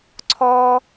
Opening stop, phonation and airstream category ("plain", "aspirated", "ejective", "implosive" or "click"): click